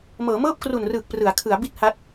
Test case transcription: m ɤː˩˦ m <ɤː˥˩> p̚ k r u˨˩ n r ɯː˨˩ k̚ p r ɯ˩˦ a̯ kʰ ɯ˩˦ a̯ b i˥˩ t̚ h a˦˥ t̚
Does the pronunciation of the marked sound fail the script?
no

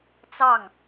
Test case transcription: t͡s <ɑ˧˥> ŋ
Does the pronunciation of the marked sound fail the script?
yes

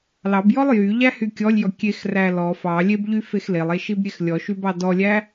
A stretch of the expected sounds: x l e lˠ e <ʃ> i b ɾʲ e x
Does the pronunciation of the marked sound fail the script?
no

